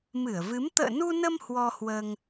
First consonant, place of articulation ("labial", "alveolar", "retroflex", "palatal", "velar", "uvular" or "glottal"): labial